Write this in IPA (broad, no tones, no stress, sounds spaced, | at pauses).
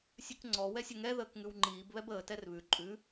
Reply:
sʲ ʉ k ŋ͡ǀ ɔ w ɛ sʲ ə ŋ ɛ ð əː k ŋ ʉ w ŋ͡ǃ iː b β ɛ b əː t ɛ r β ʉ ǃʼ ʉ